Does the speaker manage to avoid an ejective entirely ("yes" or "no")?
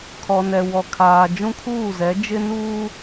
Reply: yes